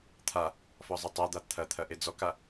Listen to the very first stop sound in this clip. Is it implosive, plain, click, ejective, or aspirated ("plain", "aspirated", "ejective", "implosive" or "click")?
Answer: aspirated